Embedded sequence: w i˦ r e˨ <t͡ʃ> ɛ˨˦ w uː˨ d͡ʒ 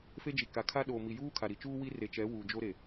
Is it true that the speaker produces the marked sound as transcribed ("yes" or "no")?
yes